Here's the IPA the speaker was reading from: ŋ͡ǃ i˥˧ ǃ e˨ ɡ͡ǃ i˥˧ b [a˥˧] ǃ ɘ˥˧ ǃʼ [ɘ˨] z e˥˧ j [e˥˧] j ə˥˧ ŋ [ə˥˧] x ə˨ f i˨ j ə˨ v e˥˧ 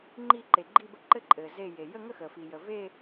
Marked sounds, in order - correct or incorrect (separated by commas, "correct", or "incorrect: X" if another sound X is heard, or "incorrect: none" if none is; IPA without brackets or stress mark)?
incorrect: ə˥˧, correct, incorrect: e˨, correct